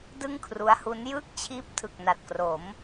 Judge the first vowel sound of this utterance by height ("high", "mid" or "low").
high